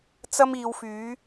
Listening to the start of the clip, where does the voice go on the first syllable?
high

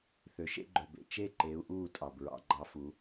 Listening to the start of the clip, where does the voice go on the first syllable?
rising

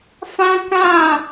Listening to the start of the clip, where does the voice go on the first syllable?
high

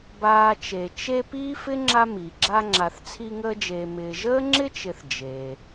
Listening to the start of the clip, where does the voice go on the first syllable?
low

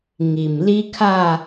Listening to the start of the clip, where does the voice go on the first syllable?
low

